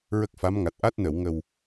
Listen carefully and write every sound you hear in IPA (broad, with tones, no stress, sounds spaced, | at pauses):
ɹ ə˦˥ k̚ f a˧˥ m ŋ a˨˩ t̚ ʔ a˦˥ t̚ n ə˨˩˨ w ŋ ə˨˩ w